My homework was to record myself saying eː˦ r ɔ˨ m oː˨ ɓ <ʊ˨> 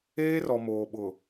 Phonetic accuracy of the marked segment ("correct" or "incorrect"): correct